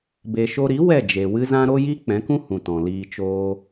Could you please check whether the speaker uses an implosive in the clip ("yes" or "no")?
no